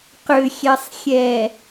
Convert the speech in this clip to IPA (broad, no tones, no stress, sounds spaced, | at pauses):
q ʏ xʲ ɛ sˤ xʲ ɛ